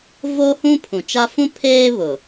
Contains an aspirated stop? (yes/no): yes